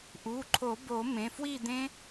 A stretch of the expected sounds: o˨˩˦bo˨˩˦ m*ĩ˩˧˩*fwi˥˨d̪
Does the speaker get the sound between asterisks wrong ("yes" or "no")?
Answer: yes